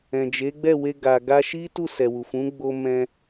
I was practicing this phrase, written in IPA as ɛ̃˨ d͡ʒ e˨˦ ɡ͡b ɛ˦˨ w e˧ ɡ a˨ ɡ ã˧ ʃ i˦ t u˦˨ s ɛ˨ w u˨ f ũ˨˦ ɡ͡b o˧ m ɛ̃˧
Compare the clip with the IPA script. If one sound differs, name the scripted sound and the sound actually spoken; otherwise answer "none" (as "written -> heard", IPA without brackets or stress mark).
ã˧ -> a˧